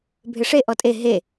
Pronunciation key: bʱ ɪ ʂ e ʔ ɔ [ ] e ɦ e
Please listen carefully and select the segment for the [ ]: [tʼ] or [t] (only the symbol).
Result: tʼ